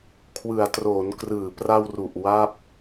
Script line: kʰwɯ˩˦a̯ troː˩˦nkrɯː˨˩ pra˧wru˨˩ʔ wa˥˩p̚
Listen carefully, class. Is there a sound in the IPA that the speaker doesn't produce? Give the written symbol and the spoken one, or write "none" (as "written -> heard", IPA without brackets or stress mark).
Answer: none